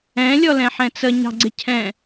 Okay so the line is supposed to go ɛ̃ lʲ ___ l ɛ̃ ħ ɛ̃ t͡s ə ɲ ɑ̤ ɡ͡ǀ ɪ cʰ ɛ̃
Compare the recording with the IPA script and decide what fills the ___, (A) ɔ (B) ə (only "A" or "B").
A